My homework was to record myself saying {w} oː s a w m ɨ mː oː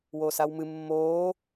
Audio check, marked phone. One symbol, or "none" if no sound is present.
w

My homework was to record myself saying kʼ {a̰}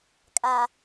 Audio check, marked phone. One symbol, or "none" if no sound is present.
a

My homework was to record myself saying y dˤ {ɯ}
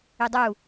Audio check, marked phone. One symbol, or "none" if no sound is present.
u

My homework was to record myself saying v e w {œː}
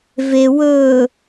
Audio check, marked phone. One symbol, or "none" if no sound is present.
ɵː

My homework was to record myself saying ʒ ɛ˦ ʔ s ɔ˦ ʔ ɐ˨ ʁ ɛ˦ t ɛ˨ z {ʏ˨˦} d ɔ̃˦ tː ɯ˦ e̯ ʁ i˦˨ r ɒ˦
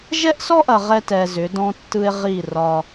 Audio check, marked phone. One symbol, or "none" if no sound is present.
ʏ˨˦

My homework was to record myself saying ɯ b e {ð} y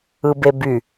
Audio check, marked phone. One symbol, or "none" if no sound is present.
b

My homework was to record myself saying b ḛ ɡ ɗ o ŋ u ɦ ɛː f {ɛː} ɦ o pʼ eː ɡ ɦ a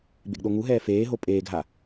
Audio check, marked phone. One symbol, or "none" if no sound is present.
eː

